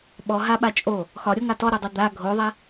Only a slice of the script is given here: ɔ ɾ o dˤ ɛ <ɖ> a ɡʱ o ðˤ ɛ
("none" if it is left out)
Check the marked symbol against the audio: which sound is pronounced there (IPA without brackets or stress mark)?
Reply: d̪